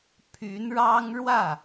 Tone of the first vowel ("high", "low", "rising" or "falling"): rising